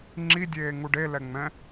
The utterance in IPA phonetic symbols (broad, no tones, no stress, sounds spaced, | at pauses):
ŋ͡ǁ i dʲ eː ŋ u ɖ e l ɛ ŋ͡m ɛ̃